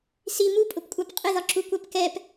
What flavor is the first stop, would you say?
ejective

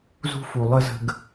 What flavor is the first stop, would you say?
plain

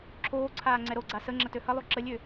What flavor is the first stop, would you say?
click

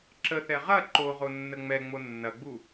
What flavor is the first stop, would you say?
click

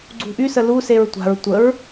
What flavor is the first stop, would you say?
click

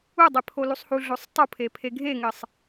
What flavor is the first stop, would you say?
plain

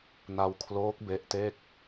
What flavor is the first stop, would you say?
aspirated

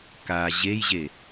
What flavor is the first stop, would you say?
plain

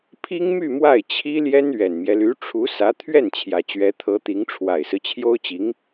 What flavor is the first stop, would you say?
aspirated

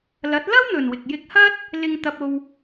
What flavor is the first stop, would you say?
plain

